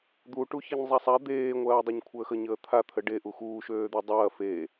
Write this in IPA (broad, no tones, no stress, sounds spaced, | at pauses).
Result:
d̪ u ʈ u ç e ɲ zˤ a sˤ a d̪ eː ŋʷ ɐː dˤ a ɲ kʷʰ əː x ə ɲ əː t̪ʰ a t̪ʰ ə ɖ e ʔ u x uː ʃ øː d̪ e dˤ ɐː f eː